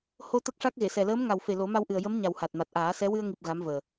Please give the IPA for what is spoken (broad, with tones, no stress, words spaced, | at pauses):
ho˧ t̪ə˦˥k̚ʂa˦˥k̚ɣe˨˩˨sɛ˨˩ ləː˧˥mŋa˨˩wfe˨˩ lo˨˩˦ma˧wʔɨ˨˩ə̯ jə˧˥m ɲa˨˩w ha˨˩t̚ma˨˩t̚ʔaː˨˩˦sɛ˧˥ wɨ˧ə̯ŋi˨˩p̚ ɣa˧˥mvəː˨˩